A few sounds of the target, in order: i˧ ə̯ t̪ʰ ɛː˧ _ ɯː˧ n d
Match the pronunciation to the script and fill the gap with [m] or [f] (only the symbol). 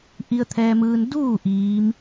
m